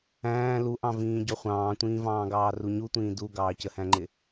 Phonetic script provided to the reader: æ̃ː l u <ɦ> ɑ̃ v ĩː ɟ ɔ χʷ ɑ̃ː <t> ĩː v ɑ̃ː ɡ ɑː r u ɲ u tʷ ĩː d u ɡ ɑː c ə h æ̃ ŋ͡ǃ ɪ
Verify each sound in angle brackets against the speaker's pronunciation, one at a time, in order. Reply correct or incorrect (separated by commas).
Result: incorrect, incorrect